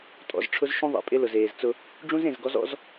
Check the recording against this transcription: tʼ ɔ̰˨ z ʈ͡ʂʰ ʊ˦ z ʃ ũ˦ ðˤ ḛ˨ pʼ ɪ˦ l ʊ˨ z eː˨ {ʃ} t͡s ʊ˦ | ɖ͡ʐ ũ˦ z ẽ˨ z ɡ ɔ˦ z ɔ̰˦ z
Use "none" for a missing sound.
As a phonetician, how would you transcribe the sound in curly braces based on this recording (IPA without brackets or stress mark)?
z